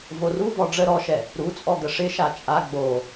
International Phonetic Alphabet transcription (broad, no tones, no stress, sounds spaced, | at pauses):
v o r u v ɔ ɖ͡ʐ ə ɾ ɔ ʃ ɛ | ɾ u t͡sʼ ɔ ɡ ə ʂ ɪ ʃ a t͡ʃʼ a ɡ͡b o